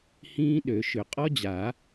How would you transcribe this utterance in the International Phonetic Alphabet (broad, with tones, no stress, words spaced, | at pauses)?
hĩː˦˥ɗø˨˩˦ʃʏ˨˩˦ qʼɔ˦˥d͡ʑa˨˩˦